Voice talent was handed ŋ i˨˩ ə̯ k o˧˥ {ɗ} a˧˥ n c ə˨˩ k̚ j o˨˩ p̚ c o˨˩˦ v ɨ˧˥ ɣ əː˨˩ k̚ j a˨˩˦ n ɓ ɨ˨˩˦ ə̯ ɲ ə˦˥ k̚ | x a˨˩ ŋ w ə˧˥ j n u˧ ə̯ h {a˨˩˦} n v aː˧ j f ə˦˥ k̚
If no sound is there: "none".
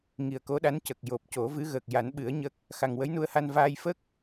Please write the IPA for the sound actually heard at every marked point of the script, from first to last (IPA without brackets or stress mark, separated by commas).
ɗ, a˧